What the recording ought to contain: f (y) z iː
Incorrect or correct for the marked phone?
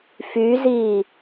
correct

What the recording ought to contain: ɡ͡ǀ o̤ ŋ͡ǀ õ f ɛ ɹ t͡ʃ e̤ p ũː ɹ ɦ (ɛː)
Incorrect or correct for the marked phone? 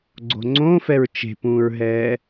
correct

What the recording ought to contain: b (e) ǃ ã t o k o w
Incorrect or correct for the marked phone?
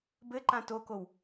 incorrect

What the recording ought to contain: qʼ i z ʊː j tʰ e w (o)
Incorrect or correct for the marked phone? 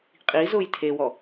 incorrect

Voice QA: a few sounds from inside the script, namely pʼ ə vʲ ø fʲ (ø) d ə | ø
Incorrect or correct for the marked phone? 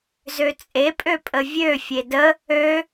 incorrect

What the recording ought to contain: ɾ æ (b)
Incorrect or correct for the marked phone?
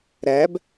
correct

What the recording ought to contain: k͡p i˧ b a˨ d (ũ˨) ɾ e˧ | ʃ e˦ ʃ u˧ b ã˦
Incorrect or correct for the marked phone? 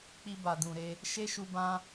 correct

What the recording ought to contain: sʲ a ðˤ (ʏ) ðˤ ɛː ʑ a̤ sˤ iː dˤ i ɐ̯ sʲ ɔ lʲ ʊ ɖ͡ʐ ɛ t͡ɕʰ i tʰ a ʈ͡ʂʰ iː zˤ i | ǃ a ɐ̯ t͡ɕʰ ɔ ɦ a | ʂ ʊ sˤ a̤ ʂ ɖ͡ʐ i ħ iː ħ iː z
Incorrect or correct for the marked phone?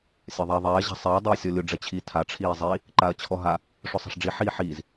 incorrect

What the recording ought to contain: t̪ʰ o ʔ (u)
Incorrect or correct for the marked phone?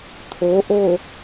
incorrect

